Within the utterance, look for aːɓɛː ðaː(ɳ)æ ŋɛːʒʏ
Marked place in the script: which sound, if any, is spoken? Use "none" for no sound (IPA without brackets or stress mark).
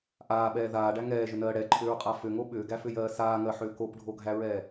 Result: ɖ